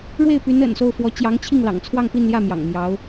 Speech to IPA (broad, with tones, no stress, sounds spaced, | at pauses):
ɻ w e˥˩ ɪ̯ p y˧˥ n ə̰˨˩ n s o˥˩ ʊ̯ f w ɔ˧˥ t͡ɕ j ɑ˧˥ ŋ t͡ɕʰ i˥˩ ŋ l ɑ̰˨˩ ŋ t͡sʰ w ɑ˥˧ ŋ p i˥˧ n l j ä˥˩ m j ɑ̰˨˩ ŋ m j ɑ˧˥ ʊ̯